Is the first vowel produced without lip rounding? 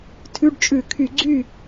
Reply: no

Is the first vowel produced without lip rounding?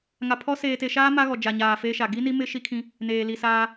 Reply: yes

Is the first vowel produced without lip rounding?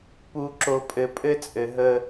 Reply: no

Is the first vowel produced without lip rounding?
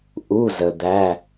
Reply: no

